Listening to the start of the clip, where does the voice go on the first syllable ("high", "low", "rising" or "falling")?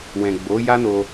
low